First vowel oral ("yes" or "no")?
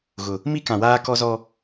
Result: yes